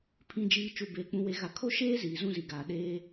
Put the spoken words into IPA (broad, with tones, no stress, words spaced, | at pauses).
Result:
pʰĩ˨d͡ʒiː˨ t͡ʃu˨beː˨k͡pũ˨we˨ ɣa˨kʰo˦ʃeː˦ ziː˨zũ˦zi˨ɡaː˨ ɗeː˦